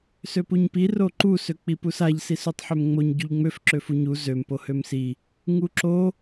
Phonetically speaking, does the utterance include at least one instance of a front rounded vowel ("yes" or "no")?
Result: yes